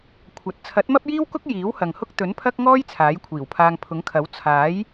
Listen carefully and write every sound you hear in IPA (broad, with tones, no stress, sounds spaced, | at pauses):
kʷʰ ɐ˨˥ t̚ t͡sʰ ɐ˨˥ t̚ m ɐ˥ p̚ j iː˥ w k ʊ˥ k̚ j iː˨˥ w h ɐ˨ ŋ h ʊ˥ k̚ t̪ ɵ˨˥ n pʰ ɐ˥ k̚ ŋ ɔː˥ j t͡sʰ aː˨˥ j kʷʰ iː˨˩ w pʰ aː˧ ŋ pʰ ʊ˨˥ ŋ kʰ ɐ˨˥ w t͡sʰ aː˨˥ j